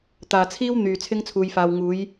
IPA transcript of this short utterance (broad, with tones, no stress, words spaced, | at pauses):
t̪aː˨t͡sʰiː˥w n̪yː˨ t͡sʰɪ˥ŋt͡sʰuː˧jfaː˧w ŋuː˨˧j